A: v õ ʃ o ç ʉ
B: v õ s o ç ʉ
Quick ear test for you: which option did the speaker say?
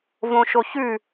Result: A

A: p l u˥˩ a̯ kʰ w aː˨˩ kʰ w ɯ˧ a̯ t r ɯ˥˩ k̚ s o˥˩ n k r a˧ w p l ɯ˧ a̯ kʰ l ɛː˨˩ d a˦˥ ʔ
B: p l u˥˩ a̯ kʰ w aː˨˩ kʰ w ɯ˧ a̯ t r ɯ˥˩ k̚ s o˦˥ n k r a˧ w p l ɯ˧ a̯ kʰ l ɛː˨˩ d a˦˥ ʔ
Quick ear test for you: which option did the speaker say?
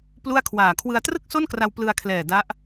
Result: A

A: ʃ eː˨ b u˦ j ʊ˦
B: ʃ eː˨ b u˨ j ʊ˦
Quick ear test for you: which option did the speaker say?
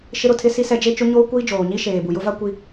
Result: B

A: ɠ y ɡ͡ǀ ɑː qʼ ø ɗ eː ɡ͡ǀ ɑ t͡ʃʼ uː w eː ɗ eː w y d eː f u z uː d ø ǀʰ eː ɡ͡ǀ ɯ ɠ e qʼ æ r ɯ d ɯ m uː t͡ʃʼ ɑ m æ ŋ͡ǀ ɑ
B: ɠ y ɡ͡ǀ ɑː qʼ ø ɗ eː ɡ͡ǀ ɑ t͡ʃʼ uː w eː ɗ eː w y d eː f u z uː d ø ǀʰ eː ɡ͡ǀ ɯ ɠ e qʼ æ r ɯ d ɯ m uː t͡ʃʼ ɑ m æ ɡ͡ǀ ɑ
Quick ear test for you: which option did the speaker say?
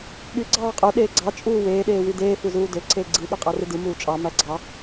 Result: B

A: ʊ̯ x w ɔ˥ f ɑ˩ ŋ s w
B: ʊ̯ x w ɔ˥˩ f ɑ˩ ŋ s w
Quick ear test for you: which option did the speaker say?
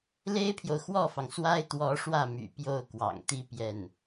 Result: B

